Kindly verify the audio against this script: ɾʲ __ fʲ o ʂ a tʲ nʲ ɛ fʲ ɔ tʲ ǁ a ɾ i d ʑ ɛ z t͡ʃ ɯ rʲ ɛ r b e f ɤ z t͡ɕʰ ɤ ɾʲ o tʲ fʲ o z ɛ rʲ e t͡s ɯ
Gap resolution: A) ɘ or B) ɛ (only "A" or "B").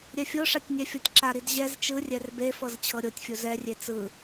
B